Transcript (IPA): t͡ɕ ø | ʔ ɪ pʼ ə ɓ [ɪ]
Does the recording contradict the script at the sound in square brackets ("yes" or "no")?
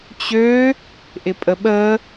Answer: yes